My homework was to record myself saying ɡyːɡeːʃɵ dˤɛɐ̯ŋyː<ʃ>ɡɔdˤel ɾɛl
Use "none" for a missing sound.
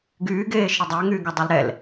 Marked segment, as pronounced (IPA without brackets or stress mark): none